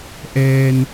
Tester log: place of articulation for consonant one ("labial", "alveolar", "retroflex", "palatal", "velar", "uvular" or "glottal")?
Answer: glottal